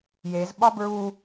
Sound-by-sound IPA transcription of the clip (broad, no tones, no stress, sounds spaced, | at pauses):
j e z ɓ ɒ b ɹ u